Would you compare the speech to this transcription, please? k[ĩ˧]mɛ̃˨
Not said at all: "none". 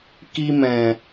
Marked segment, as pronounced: i˧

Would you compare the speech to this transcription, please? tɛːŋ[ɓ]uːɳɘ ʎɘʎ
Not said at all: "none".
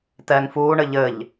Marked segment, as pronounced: f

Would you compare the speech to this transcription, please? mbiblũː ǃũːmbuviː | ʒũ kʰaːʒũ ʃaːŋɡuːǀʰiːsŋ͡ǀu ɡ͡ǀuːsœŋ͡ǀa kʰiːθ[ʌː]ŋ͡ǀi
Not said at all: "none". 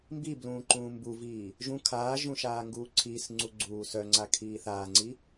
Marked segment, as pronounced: aː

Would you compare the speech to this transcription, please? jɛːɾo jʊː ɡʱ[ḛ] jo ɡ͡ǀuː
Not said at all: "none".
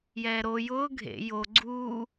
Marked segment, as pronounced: ḛ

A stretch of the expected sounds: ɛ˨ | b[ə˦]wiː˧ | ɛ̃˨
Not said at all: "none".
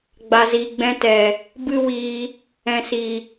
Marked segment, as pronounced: ɨ˦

